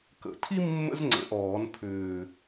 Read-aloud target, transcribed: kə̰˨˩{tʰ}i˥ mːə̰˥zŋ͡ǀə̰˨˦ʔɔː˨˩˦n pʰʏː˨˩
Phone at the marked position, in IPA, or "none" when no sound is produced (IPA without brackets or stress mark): tʰ